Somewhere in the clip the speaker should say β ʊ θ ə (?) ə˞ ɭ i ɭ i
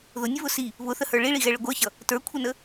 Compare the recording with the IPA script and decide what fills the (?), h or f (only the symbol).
h